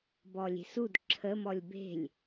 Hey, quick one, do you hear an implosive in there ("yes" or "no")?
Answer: no